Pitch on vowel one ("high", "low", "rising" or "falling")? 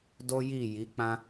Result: high